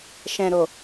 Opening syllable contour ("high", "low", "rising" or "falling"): low